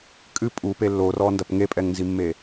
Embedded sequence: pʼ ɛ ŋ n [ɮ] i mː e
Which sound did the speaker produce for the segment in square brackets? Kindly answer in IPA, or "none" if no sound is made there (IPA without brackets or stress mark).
z